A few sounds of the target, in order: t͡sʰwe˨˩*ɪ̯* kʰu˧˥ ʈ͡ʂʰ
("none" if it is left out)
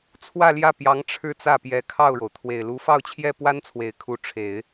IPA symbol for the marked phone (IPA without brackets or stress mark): ɪ̯